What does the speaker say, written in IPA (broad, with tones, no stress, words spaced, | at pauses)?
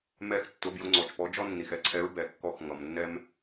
mɛ˥x tːʊ˧˥bjʊ˧˥ŋ͡ǀɔ˨t͡ʃpɔ˧˥ d͡ʒɔ˥nːi˨xɛ˧˥ǀʰɛ˧˥ɹ bɛ˨kːɔ˧˥x ŋʌ˨mnːɛ˥m